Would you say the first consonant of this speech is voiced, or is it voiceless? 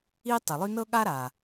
voiceless